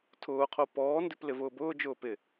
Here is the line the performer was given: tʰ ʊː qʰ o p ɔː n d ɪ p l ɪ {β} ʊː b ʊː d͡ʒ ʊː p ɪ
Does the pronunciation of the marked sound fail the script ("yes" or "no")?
yes